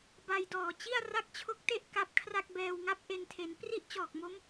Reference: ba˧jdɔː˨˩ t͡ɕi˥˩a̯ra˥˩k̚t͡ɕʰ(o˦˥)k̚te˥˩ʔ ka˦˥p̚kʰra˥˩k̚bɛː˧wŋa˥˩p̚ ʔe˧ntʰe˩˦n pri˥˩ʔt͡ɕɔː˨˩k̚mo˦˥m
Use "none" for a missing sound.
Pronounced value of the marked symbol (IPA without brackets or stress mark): o˦˥